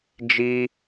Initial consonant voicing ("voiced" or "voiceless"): voiced